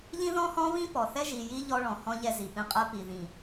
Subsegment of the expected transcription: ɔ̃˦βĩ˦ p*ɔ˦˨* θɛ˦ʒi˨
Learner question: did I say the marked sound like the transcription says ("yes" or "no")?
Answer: no